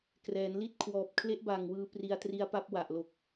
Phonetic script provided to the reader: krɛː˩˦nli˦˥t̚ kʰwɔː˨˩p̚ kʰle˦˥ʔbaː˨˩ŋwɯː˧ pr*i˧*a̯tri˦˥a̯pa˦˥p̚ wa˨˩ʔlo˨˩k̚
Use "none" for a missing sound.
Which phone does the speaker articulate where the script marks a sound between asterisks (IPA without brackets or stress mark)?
i˧